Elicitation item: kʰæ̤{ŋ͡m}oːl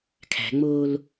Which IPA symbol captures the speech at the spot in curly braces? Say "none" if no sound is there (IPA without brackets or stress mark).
ŋ͡m